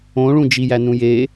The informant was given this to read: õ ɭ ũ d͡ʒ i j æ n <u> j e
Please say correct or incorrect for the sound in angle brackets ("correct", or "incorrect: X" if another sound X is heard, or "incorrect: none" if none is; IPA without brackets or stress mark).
incorrect: ũ